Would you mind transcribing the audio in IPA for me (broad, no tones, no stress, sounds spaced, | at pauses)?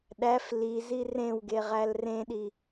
ɗ æ f l i z i r ẽ w ɡ e ʁ æ l r ẽ ɗ i